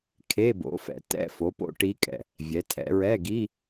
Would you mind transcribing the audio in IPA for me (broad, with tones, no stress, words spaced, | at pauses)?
kʰe˧˥˧bo̰˩˥ fɛ̰˩˧ tɛ̰˧˥˧fo˩˥po̰˧˥ ʈi˧˥kʼɛ̰˨˩ | vʲɛ˩˧tʰɛ̰˩˧ɹɛ˧˥˧ ɡi˧˥˧